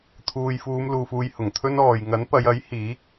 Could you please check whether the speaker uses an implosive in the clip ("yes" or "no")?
no